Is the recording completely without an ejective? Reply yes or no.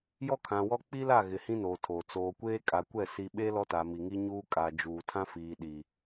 no